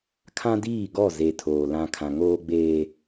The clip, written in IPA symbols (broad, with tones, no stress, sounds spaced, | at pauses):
kʰ ã˦ d iː˦˨ ɡ ɔ˦˨ z e˨ tʰ oː˨ l ã˨ kʰ ã˨ ŋ oː˦ ɡ͡b eː˦